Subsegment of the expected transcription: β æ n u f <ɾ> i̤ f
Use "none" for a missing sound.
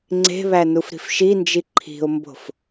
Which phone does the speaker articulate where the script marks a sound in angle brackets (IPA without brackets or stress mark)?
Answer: ɾ